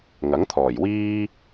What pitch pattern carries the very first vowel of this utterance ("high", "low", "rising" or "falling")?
rising